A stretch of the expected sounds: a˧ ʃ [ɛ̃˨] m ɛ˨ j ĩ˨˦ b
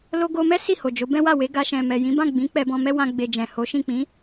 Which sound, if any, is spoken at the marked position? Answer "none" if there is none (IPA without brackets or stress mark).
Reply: ɛ̃˨